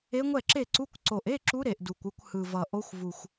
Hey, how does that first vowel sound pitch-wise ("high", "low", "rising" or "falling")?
rising